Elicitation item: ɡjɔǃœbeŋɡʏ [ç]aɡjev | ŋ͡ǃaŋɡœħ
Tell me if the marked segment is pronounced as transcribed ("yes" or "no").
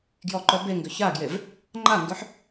yes